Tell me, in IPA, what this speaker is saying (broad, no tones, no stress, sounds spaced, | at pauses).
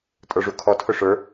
tʼ ə˞ ʐ u kʰ ɔ tʰ ʊ ʂ ə˞